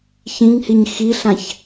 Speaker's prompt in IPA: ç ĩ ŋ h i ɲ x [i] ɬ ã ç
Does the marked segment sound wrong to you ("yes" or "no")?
no